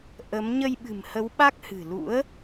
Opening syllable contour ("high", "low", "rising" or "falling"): rising